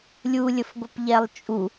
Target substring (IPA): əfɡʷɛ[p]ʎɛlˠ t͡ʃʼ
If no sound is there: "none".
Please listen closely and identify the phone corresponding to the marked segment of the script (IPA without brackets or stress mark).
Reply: p